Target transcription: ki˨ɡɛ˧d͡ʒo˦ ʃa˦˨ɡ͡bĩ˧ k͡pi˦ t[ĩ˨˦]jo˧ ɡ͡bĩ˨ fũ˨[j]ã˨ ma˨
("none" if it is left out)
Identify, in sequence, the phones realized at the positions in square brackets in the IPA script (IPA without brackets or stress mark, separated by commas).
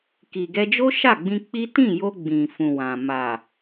ĩ˦˨, w